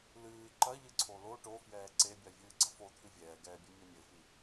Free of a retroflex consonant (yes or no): no